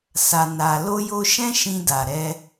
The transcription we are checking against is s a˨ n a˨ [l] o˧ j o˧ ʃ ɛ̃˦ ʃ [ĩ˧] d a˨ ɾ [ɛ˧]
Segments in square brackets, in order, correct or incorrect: correct, correct, correct

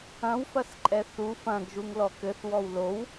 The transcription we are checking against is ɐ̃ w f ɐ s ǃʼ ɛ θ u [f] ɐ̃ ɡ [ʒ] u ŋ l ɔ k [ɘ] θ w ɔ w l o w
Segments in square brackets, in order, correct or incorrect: correct, correct, correct

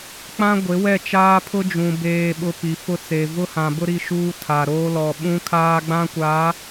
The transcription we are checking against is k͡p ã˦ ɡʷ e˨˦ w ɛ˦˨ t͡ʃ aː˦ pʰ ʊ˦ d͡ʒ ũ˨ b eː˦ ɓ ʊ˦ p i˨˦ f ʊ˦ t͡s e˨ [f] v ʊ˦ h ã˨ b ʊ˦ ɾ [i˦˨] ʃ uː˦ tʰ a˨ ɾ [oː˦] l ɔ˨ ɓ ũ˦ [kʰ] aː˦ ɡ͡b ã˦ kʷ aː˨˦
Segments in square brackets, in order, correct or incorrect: incorrect: none, correct, correct, correct

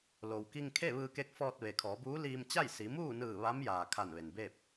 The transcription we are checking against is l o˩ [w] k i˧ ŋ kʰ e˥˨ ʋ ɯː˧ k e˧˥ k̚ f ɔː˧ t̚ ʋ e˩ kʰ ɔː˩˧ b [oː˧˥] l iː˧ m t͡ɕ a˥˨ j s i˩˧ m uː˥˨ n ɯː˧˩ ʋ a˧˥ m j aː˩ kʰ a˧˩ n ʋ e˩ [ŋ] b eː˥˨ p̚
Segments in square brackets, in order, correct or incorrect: correct, incorrect: uː˧˥, incorrect: n

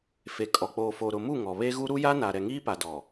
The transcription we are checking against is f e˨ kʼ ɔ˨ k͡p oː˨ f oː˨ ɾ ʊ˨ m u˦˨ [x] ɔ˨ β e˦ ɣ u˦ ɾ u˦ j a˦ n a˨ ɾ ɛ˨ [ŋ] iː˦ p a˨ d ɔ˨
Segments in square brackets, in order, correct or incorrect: incorrect: ŋ, correct

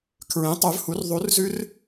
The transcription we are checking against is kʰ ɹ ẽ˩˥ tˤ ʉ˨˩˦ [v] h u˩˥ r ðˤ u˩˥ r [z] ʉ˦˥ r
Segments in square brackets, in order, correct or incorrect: correct, correct

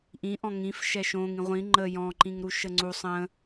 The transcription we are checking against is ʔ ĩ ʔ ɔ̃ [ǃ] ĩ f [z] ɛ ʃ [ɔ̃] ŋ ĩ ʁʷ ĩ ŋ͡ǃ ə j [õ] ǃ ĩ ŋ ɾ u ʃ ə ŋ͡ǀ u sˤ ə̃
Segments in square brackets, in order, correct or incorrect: incorrect: ŋ, incorrect: ʃ, incorrect: õ, incorrect: ɔ̃

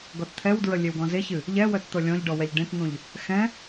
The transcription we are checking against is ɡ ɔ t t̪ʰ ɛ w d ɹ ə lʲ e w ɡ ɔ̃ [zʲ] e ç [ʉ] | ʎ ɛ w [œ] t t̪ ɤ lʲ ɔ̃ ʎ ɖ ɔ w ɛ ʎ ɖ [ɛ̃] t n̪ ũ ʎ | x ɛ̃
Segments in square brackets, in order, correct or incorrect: incorrect: z, incorrect: ɨ, correct, incorrect: ẽ

